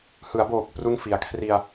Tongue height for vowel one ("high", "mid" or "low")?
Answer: high